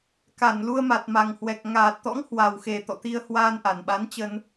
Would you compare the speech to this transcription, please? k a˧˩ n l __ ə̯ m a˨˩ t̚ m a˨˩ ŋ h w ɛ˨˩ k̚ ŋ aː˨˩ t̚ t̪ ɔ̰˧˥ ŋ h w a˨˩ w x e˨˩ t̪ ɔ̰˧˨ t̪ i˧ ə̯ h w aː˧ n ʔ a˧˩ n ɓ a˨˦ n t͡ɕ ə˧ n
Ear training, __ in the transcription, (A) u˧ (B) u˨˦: A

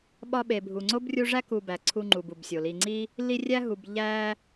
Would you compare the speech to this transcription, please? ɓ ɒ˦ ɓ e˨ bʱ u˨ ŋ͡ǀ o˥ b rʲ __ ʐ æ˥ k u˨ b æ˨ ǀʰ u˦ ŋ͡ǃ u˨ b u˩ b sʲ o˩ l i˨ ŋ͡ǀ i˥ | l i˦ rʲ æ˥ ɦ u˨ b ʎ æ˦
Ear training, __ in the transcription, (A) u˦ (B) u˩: A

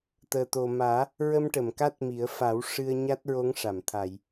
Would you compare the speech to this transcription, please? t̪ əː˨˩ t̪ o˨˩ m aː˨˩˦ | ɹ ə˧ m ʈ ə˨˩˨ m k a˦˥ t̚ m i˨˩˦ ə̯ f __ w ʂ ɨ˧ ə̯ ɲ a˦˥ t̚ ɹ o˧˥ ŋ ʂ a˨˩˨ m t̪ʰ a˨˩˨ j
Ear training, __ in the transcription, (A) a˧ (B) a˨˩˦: B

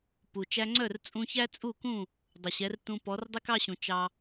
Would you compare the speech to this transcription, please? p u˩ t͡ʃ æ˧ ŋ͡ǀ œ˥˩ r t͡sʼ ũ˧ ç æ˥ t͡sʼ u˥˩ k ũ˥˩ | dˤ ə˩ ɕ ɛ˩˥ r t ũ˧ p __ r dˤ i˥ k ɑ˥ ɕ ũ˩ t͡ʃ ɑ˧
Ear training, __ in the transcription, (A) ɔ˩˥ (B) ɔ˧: A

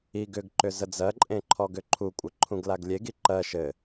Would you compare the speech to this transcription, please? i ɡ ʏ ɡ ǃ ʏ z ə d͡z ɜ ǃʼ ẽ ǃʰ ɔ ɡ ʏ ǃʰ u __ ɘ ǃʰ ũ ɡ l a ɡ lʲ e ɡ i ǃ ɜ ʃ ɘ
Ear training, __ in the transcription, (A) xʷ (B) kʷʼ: B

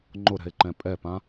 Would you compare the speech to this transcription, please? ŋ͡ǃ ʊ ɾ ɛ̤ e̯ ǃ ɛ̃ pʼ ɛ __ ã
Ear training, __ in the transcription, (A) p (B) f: A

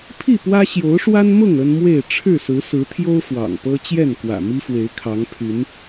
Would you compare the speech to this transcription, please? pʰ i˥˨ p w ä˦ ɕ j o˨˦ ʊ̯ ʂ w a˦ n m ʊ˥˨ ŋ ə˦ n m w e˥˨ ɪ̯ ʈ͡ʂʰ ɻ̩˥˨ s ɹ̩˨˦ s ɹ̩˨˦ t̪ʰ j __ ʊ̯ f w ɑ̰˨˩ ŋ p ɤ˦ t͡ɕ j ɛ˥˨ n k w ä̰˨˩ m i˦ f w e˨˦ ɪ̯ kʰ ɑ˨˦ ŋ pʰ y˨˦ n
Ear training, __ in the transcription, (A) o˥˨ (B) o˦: B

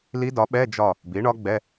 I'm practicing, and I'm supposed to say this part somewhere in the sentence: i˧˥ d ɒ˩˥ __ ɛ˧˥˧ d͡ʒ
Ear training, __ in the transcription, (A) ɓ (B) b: A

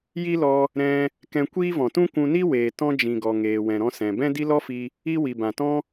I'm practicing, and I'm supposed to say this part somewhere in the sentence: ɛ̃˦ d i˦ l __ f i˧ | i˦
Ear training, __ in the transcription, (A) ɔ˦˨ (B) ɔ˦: B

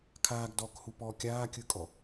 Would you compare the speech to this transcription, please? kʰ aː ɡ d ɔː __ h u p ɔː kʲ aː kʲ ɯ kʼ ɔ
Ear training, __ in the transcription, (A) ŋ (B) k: B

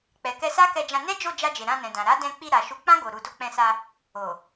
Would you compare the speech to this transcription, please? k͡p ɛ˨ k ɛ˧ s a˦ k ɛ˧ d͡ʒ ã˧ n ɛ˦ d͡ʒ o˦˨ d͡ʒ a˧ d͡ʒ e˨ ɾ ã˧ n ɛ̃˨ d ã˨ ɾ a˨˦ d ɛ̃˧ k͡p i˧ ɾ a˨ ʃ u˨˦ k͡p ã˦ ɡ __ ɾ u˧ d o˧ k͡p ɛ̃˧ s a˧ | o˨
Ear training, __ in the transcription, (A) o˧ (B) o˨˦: A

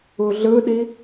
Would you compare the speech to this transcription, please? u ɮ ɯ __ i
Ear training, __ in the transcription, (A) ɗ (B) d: A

